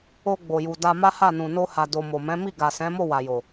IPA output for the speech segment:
o˧ɡ͡bo˨ju˨ da˧ ma˦ha˦˨nũ˨ no˧ha˨ do˨mo˨mɛ̃˨˦ mi˦˨ɡa˨sɛ̃˨˦mo˦˨ wa˨jo˨

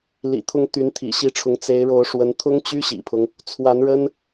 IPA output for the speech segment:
lḭ˨˩t̪ʰʊ˧˥ŋ t̪y˧˥nt̪ʰḭ˨˩ɕi˧˥ʈ͡ʂʰʊ˧˥ŋ t͡se˧˥ɪ̯ɻo˧˥ʊ̯ʂwə˧˥n t̪ʰʊ˥ŋt͡ɕy˥ɕḭ˨˩pʰʊ˦ŋ | t͡sʰwa˧˥nɻə˥n

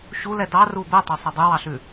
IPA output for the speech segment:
ɕulɛ dɑru bɛtˤosˤɛ dˤɵwɑɬʉ

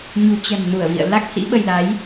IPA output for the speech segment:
ɲṳ˨˩t͡ɕɛ̤˨˩m nu˧˩ə̯vḭ˧˨ə̯la˦˥k̚ hḭ˧˥ɓə˧jla˨˦j

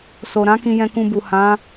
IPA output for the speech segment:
so˨ɾã˨˦ kĩ˧jɛ̃˧kũ˧bu˨ hã˨˦

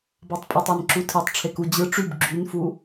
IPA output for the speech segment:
bɑtˤpʼɯtˤæn ǁutʰetˤ ʈ͡ʂʰeku d͡ʑɯ ʈ͡ʂyb ɡ͡ǁynfu

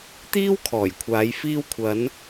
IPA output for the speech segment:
t̪iː˥wkʰɔː˨˩jkʷʰaː˨˧j fiː˧wkʷʰɐ˨˧n

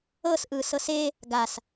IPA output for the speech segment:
ɤs ʔɯːsɤse | ɡas

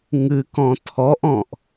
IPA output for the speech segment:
ŋɨkɔ̃ tʰɔʔɔ̃ʔ

